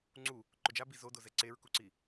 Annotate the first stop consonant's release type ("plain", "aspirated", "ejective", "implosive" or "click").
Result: click